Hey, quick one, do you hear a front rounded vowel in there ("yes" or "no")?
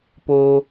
no